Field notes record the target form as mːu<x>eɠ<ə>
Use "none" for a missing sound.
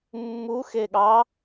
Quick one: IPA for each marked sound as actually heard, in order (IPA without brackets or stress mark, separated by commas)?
x, ɑ